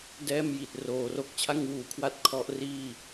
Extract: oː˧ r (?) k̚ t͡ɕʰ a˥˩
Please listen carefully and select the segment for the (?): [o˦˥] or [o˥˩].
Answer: o˥˩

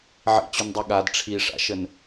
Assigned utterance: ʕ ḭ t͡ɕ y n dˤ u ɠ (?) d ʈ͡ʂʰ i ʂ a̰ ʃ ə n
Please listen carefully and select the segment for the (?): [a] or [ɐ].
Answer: a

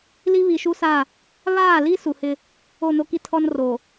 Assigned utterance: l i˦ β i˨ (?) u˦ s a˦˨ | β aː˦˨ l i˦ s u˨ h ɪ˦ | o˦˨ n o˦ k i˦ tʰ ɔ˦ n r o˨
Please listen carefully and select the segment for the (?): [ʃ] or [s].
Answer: ʃ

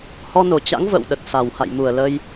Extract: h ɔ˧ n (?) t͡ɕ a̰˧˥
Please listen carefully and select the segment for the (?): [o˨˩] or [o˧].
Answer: o˨˩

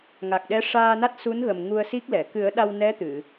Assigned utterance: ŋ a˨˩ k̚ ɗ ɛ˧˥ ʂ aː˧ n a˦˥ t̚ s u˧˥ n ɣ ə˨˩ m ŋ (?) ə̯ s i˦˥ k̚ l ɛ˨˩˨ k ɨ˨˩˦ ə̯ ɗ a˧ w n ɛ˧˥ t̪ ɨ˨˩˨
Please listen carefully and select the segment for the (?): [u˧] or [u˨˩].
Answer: u˧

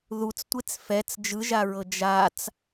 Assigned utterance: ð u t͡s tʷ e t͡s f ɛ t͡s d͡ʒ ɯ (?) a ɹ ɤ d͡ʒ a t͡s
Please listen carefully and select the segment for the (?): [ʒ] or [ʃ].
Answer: ʒ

